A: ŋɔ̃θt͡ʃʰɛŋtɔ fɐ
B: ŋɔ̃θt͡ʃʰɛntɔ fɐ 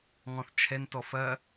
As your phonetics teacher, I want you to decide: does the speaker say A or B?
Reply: B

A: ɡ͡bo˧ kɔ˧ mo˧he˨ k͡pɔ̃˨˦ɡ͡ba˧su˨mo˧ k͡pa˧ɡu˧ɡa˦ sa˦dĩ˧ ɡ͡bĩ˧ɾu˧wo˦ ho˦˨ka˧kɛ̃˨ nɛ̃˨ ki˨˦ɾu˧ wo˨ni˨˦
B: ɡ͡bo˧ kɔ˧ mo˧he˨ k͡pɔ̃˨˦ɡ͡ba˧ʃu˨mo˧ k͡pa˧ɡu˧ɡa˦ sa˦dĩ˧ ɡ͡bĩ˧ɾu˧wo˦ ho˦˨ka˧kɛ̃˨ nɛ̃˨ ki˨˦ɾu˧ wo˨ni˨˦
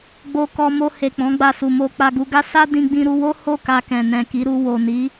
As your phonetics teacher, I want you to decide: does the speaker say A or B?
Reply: A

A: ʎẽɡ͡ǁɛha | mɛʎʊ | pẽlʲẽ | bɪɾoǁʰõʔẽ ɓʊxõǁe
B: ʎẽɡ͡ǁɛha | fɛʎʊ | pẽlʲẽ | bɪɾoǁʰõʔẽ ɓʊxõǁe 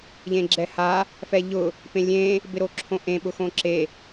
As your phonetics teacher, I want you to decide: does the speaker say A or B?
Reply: B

